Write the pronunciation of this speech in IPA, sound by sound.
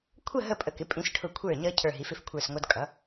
kʷʰə˥˧ ɦə˥˧pʼə˧kɪ˩˥ pʼĩ˧sʈʰʊ˧˩ kʷʰə˞˧˩ɲʌ˧ cʰə˞˧˩ɦi˩˥fɪ˧f kʷʰə˞˧˩sŋʷʌ˧dkʼʌ˩˥

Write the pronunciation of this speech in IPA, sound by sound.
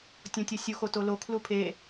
tʲõtʲosʲu xotolo kʰlupʰe

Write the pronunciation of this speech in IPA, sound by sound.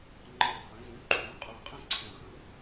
ŋ͡ǃɯ˨˩wχə̃˩˧zũ˩˥ ǃʰũ˩˥ qʼu˨˩qʼə̃˥˩ǀʰɛ̃˨˩ ʁə̃˩˥w

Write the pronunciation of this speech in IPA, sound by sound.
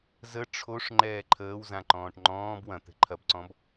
zə ʈ͡ʂʰoʂ ŋ͡ǃɛːǃʰəːwzãǃɔ̃ːʈ ŋ͡ǃɔ̃ːb wɐ̃ t̪ɛ̤ǃʰɐbǀɔ̃b

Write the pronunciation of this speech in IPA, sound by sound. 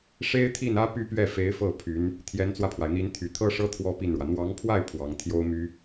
ʂe˥ɪ̯t̪ʰi˥˩nä˥ py˥pɥɛ˥˩ fe˧˥ɪ̯fɤ˥˩ pʰy˧˥n | t̪ʰjɛ˧˥nt͡swä˧pʰwa˩ɪ̯n̪i˧˥n t̪ʰy˨˩t̪ʰɤ˥ʂɤ˥ t̪ʰwɔ˥pi˥˩nɻwä˩ n̪wɑ˧˥ŋpʰwa˥˩ɪ̯ pʰwɑ˧˥ŋ t̪ʰjo˥ʊ̯my˥

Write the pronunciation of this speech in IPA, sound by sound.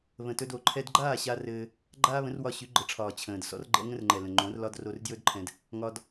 βə̃˨tɵ˧d o˨ ǃʰɛ˧dɡ͡ǃaː˦˨ɕa˧ rɘː˧ | ɡ͡ǃaː˦βə̃˨˦r wɒ˧ɕy˨˦ɡ͡ǃə˨ʈ͡ʂʰɒː˨ t͡ɕʰə̃ː˨d sɔ̰˦rɡ͡ǃɛ̰˦ ŋə̃˦rŋ͡ǃɛ˨ lə̃˨ŋ͡ǃõ˨˦rlɒ˦d ro˧rdjɵ˦dǃʰɛ̃˧d | ŋɒ˧d

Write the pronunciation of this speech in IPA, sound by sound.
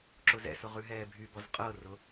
ǁʊzɛ̰sʊ ʁʉɦɛːbʱybɔz qʼɤrʊ

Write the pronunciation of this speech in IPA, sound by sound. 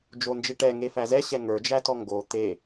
d͡ʒond͡ʒeʈɛ ŋefæzɛ ɕɛŋə˞ d͡ʒætɔŋɡo t̪e

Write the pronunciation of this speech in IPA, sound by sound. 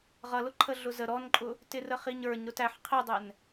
ʁʌlʊǃʰə ɮʊzə ɾɔnǃʼʊ | tɪrəχiɲə˞ɲ ɾʊtæħ qʰidˤɛn

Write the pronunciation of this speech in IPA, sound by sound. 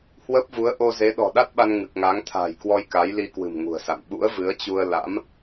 hwə˦˥p̚vu˨˦ə̯ ʔo˧ze˨˦ ɗɔ̤˨˩ɗa˦˥t̚ɓa˧n ŋɨ˨˩k̚ŋa˨˦ŋ t̪ʰa̤ː˨˩jkwɔ˧j ka˨˦jli˧kwɨ̤˨˩m ŋṳ˨˩ə̯sa̰˧˨m ɓṵ˧˥ə̯vɨ˨˦ə̯t͡ɕu˧ə̯ la̰˧˥m

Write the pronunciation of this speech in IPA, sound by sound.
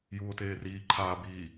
juːo̯teːriː ǃʰaːbiː

